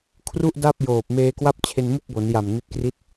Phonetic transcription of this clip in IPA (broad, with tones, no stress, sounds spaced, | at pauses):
kʰ r u˥˩ ʔ d a˥˩ p̚ j oː˨˩ p̚ m eː˧ k w a˥˩ p̚ t͡ɕʰ e˧ n m u˥˩ k̚ b o˩˦ n j a˨˩ m n i˦˥ t̚ k r i˥˩ t̚